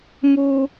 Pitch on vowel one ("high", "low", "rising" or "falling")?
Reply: high